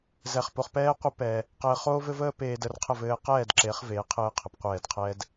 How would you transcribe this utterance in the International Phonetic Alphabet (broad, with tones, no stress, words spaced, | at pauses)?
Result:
zɛ˧χpo˧χ pɛː˦qʷə˦pɛ˧ | qɘː˧χoː˦vɘ˦vəː˦ peː˧də˧rqʰə˦˨ vɘː˧qɛː˦˨dǁe˨˦χ veː˨˦qʰɘː˧qʰə˨p qʷɛː˦˨d qʰɛ˦d